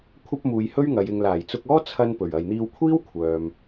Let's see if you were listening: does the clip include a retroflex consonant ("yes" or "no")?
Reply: no